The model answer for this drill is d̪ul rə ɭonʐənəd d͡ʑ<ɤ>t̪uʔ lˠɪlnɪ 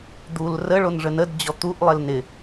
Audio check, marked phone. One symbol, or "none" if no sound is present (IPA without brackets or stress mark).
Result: ɔ